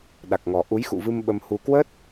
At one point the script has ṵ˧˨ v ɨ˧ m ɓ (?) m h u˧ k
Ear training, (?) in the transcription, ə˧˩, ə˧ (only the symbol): ə˧